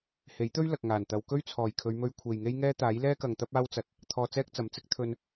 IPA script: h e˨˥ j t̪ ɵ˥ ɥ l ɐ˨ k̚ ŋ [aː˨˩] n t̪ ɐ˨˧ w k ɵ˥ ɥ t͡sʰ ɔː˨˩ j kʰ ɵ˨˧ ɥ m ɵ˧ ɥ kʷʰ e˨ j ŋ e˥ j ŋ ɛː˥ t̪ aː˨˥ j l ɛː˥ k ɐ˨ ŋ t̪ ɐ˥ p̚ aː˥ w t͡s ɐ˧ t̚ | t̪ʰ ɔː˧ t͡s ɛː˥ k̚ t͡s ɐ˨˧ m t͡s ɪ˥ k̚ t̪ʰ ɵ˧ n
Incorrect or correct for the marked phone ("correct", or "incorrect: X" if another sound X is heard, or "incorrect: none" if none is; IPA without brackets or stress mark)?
correct